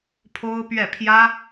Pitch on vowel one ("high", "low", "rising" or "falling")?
high